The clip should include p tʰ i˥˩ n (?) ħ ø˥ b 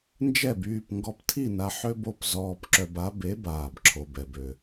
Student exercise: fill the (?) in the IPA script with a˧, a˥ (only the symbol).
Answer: a˧